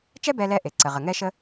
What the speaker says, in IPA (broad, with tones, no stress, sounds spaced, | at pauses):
t͡ʃ ɛ˥ b ɛ˧ l ɛ˧ ʔ e˩ ǀ ə˩ ʁ ə˩ ŋ ɛ˧ ʃ ə˧